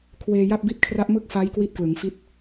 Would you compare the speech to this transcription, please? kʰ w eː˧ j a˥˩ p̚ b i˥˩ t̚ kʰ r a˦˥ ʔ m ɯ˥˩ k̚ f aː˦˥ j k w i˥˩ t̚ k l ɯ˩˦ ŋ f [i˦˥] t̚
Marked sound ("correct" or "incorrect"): correct